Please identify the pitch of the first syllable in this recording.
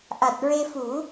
low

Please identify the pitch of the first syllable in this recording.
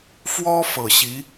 high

